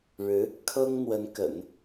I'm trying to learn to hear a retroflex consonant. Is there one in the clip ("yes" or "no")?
yes